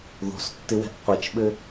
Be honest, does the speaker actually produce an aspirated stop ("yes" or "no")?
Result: no